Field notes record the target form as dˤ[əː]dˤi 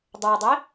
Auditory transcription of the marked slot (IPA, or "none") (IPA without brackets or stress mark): əː